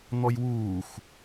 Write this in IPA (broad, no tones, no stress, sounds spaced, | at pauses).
n̪ ɔ j w uː x